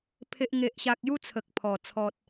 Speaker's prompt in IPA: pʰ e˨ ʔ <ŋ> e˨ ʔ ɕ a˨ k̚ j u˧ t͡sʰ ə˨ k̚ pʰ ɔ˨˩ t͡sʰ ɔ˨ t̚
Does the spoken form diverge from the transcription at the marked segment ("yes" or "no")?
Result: no